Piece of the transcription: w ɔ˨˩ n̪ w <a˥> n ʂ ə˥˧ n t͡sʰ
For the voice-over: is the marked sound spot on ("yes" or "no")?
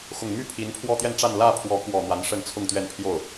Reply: no